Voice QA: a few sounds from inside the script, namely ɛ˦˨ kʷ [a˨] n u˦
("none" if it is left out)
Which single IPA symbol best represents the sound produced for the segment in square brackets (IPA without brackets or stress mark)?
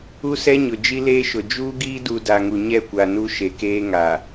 a˨